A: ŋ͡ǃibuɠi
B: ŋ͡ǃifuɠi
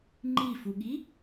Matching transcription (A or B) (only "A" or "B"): B